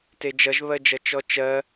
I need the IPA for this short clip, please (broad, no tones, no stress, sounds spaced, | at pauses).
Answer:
t e d͡ʒ ʌ ʒ β ɜ d͡ʒ ʌ t͡ʃ ɔ t͡ʃ ɜ